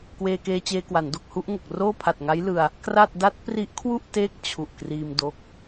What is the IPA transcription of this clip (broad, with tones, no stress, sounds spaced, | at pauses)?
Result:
k w eː˧ k eː˧ t͡ɕ eː˧ k w a˩˦ n d o˨˩ k̚ h u˥˩ ʔ ŋ o˨˩ k̚ r oː˥˩ pʰ a˨˩ t̚ ŋ a˦˥ j l ɯ˧ a̯ | k r a˥˩ t̚ d a˦˥ t̚ p r i˦˥ ʔ kʰ w u˥˩ ʔ t eː˦˥ k̚ t͡ɕʰ u˨˩ ʔ k r iː˧ m d o˦˥ k̚